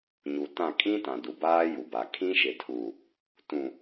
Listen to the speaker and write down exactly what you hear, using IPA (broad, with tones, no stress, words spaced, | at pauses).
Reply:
ɲu˨tã˦˨ kʼĩ˦tã˨ du˨baː˦ju˨ba˨ kʰĩ˦ʃɪ˨tʰu˨ | tũ˨